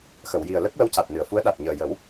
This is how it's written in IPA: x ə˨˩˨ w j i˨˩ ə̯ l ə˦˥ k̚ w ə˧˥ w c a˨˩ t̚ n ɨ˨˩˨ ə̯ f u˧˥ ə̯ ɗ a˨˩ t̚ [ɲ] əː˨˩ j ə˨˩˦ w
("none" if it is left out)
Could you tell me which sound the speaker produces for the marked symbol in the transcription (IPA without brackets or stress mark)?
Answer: ɲ